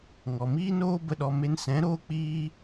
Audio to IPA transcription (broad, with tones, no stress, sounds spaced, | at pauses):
ŋ ɔ˨ m iː˦ n oː˦ b ə˧ ɗ ɔ˧ m e˧ n s ɛ̃˨˦ ɾ oː˦ k͡p iː˦